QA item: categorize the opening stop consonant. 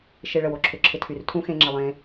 click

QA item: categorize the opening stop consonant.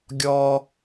plain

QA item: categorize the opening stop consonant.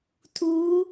aspirated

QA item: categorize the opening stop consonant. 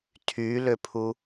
aspirated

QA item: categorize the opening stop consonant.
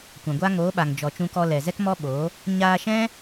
plain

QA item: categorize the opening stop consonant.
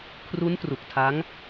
aspirated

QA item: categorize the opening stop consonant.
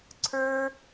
click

